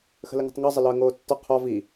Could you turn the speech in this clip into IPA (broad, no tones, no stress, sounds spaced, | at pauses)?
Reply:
x ə̤ l ə ŋ ə̤ tˤ ŋ ɒ zˤ ə l ɒ ə̯ ŋ oː tː ɒ qʰ ɒ v i